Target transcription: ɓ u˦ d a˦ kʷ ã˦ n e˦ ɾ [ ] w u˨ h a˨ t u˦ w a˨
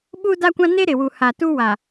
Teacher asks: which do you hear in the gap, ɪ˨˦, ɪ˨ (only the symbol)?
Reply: ɪ˨